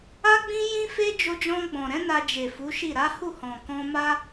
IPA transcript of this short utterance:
a˦ ɡ͡b ĩ˦ j ĩ˦ f e˦ d͡ʒ o˧ d͡ʒ ɔ̃˧ ɡ͡b ɔ̃˨ ɾ ɛ̃˨˦ n a˧ d͡ʒ e˨ f u˨˦ ʃ i˦˨ ɾ a˨˦ h u˦˨ h ɔ̃˨ k ɔ̃˧ m a˦

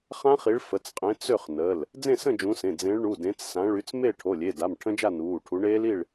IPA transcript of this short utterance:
χ ã˦˥ χ i˨˦ ɭ f ə˩˧˩ t͡s qʼ ẽ˨˦ t͡s ø˥˨ χ n ə˩˧˩ l | d͡z ẽ˥˨ s ə̃˥˨ d͡ʒ ũ˨˦ s ẽ˩˧˩ d͡z ẽ˨˦ ɭ ɳ u˩˧˩ d ẽ˨˦ t͡s s ã˨˦ ɭ y˨˦ t͡s m e˥˨ ʈʰ o˩˧˩ lʲ e˩˧˩ d a˩˧˩ m ʈʰ ə̃˦˥ d͡ʒ a˥˨ n uː˩˧˩ ʈʰ u˨˦ ɳ eː˦˥ l i˥˨ ɭ

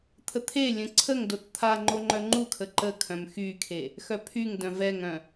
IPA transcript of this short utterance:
t̪ʰ ə t̪ʰ e lʲ ə̃ ǀʰ ə ŋ d o t t̪ʰ a ŋ͡ǃ o ŋ͡ǃ œ ŋ͡ǃ u kʰ ə ǃ ə kʰ œ̃ m x y kʰ e | x œ pʰ y ŋ d œ̃ v ɛ ŋ œ̃

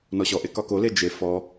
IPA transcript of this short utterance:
n ɔ ɕ ɔ ʔ e k ɒ k o l e d͡ʒ e f ɔ

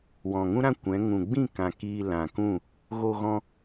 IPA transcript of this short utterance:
w ɔ̃˨ ŋ ũ˦ ɾ ã˦ kʷ ɛ̃˨˦ ŋ ũ˨ ɡ͡b ĩ˦˨ k ã˨ k iː˧ l ã˨ k ũ˦˨ | ɣ o˧ ɣ ɔ̃˧

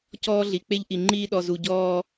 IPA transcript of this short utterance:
c ɔː˦ ɮ i˨ k͡p e˦ ʎ ʔ i˨ ŋ͡ǃ iː˦ ɗ ɔ˨ z u˨ ɟ ɔː˦

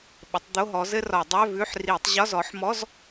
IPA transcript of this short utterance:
ɓ ə˨˦ tˤ d̪ o˧˥˧ ɦ ɔ˨˦ z ɘ˥ r ɒ˧˩˧ dˤ œ˧˥˧ v ʉ˧˥˧ ħ r i˧˩˧ tˤ ʑ ɒ˧˥˧ z ɔ˨˦ ħ m ɔ˧˥˧ z

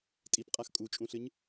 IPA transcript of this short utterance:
tʼ i p qʼ a x kʼ u t͡ʃʼ ũ ɬ ɨ ɲ

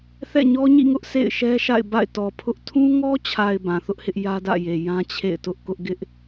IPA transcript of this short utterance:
θ ɛ̰˦˨ ɲ ɔ˦ ɲ ḭ˦˨ ŋ ʊ˦ ʔ s ḛ˦˨ ɪ̯ ʃ ɛ˦ ʃ a̰˦˨ ɪ̯ b a̰˦˨ ɪ̯ t ɔ˨ pʰ ʊ˦ ʔ tʰ ũ˦ ŋ ɔ˦ t͡ɕʰ a˨ ɪ̯ b ã˨ θ ʊ˦ ʔ h ɪ˦ ʔ j ä˦ d ä̰˦˨ j e˨ j ã˦ t͡ɕʰ ḛ˦˨ ɪ̯ t ʊ˦ ʔ k ʊ˦ ʔ ɡ ɪ˦ ʔ

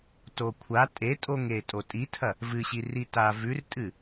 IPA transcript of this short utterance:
t o kʷʰ a tʼ e tʼ o ŋ e tʼ o tʼ i tʰ ɐ | v ɨ ɕ i r i t a v ʉ r tʼ ɨ

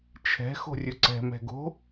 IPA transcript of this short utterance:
t͡ʃʰ ɛ̤ x o̤ rʲ ɵ ǀ ɛ̤ m ɛ̤ ɡ o̤

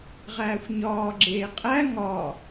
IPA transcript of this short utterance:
ʁ æː xʷ ɲ ɒː ɡ͡ǁ eː qʼ æ ŋ ɒ

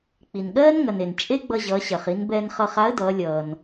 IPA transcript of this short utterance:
k͡p i˩ n ɠ ɜː˥ n ŋ ɐ˩ n e˩ n t͡ʃʼ e˥ ɡ͡b ʌ˧ ʑ ʌː˩˧ ɕ ɐ˩ χ i˩˧ n b ɛː˧ n χ ʌ˧ χ a˧˥ ə̯ d ʌː˩˧ lʲ ʌː˩ n

